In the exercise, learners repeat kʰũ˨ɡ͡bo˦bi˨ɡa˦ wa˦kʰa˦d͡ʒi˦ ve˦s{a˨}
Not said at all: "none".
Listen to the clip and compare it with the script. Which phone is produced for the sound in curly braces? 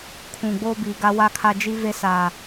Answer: a˨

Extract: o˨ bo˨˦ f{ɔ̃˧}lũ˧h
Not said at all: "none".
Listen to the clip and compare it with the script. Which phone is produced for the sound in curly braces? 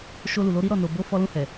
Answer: ɔ˧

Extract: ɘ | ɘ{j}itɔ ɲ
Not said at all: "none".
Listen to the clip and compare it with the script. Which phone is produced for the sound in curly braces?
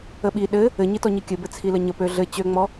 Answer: ɲ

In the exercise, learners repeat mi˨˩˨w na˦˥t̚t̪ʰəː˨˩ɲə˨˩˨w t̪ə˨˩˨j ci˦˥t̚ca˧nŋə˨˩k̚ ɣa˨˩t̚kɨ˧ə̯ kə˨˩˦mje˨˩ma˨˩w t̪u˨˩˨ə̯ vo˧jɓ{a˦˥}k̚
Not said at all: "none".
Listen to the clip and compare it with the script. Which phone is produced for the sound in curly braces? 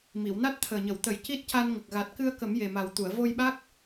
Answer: a˦˥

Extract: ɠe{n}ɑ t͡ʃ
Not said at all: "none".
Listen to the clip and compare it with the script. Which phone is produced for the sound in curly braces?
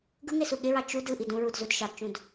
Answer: ɹ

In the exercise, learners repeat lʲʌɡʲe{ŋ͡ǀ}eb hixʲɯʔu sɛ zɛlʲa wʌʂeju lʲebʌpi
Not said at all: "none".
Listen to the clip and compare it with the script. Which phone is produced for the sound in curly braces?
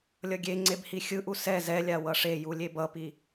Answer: ŋ͡ǀ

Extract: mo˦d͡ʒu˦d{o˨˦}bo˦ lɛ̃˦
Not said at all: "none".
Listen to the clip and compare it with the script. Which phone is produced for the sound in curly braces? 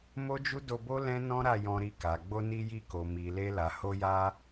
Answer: o˧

